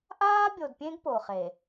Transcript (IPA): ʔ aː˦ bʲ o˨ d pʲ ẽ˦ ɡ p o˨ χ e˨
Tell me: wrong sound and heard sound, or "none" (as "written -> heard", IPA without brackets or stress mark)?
none